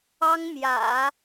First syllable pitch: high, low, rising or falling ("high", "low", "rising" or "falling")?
high